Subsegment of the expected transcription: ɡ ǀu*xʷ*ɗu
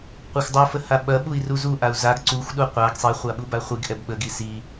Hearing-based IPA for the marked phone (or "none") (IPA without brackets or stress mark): xʷ